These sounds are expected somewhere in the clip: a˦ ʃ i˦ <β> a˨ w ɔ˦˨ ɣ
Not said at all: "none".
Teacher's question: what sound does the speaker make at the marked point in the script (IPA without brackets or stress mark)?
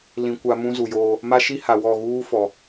h